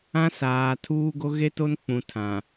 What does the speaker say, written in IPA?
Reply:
ã˦ s aː˨ tʰ uː˦ ɡ o˦ ɣ e˦ t o˦ n k͡p ũ˨ tʰ ã˨

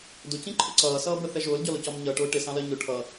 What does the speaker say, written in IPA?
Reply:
d ʊ c ĩ ǃʰ ʊ ǀ ʌː s ʌː b ə θ ɛ ʒ ʊː l ɟ ɒ l ʊ c ɒ m ɲ ʌː ʈ ʊː ʈ ɪ s ɑ̃ l ɜ ɲ ʊ ʈʰ ʌ

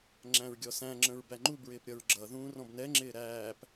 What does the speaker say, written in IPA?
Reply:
ŋ͡ǁ æ̃ ɹ ɡʲ ɔ s æ̃ ŋ͡ǁ ə̃ ɹ b æ ŋ͡ǃ u b ɹ ɪː p ɾʲ ʌ ɹ ɡ͡ǁ ʌ ð ũː r ɔ̃ b n ɛ ŋ͡ǁ ɪː ɾ æː p

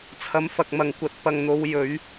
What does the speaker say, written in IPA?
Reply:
t͡sʰ ɐ˨˧ m f ɐ˨ k̚ m ɐ˨˩ ŋ kʷ ɐ˨ t̚ p ɐ˨ ŋ n̪ o˨˧ w j ɵ˨˧ ɥ

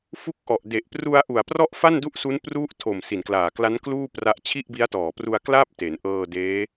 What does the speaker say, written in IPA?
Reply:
f u˦˥ k̚ ʔ ɔ˨˩ ʔ d e˨˩ ʔ p r u˧ a̯ ʔ u˨˩ a̯ p r ɔ˥˩ ʔ f a˥˩ n d u˥˩ ʔ s u˦˥ n p r u˦˥ ʔ tʰ o˨˩ m s i˨˩ n k l aː˨˩ k l a˦˥ n k l uː˥˩ p r a˦˥ ʔ t͡ɕʰ i˥˩ ʔ b i˦˥ a̯ t ɔː˨˩ p r u˧ a̯ k l a˥˩ p̚ t e˩˦ n ʔ ɤː˧ d eː˦˥

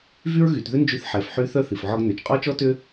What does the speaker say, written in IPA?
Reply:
v y˥ ɹ ɣ y˩˧ t ð ʏ˥ n d͡ʒ y˧ θ ħ ɛ˩˧ f ħ y˧˥ θ œ˥ θ i˩ f ʕ ɔ˧ ɡ n ø˩ t͡ʃ qʼ ɔ˥ t͡ʃ ɔ˥ t ʏ˥

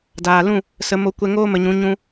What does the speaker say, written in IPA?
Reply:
d aː˨ l ũ˦˨ | s ə˧ m o˧ kʷ ɛ˧ ŋ oː˦ m ə˧ ɲ ũ˨˦ ɲ ũ˧

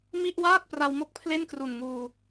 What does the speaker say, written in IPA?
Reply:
m i˥˩ ʔ w aː˥˩ t̚ p r a˧ w m o˦˥ k̚ pʰ l e˥˩ n k r u˨˩ n ŋ uː˧

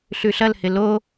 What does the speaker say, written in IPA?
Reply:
ɬ ʉ ɬ ɐ l h ɪ l o

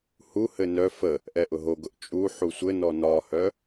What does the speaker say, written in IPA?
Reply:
h u h ɘ n œ f ə | ʔ ɛ ʔ ʊ ɦ o ɡ ʊ ʔ t͡ʃʼ u ħ u sʷ ɘ n ɔ n ɒ h œ

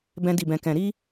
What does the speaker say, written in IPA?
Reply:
b ɛ̃˦ d i˦˨ b ɛ̃˧ k ɛ̃˧ ɾ i˦

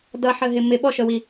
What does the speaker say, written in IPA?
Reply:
d ʌ ħ ə ɦ ɪ m ɪ ɓ ɔ ʃ ə w i

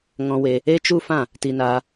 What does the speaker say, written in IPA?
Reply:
ŋ ɔ̃˧ w e˧ | e˦ t͡ʃ u˦ f ã˦˨ | t i˧ n aː˧

